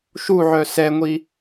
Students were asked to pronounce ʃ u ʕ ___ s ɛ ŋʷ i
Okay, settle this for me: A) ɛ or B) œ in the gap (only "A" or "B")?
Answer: B